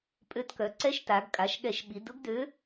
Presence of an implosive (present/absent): present